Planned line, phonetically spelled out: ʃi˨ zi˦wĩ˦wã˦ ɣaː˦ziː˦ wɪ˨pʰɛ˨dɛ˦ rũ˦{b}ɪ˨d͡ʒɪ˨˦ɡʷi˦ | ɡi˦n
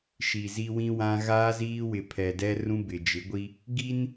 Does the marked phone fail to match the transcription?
no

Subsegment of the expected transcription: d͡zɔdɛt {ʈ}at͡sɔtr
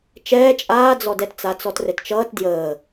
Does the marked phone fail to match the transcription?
yes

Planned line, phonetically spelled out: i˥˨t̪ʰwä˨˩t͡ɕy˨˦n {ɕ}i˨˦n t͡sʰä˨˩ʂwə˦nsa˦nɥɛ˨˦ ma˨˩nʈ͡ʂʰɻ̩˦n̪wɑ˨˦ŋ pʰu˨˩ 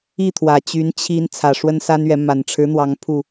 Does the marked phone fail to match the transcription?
yes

